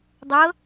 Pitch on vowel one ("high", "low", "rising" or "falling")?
rising